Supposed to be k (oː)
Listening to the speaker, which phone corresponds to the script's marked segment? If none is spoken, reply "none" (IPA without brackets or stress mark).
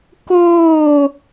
oː